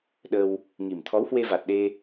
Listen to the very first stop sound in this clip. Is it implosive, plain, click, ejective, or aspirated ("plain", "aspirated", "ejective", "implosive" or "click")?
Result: implosive